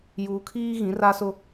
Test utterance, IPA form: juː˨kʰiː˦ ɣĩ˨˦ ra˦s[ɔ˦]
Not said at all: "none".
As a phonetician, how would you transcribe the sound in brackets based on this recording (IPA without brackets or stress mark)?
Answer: ʊ˦